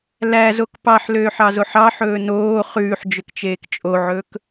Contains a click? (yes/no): no